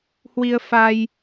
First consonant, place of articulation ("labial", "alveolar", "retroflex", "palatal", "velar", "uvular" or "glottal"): glottal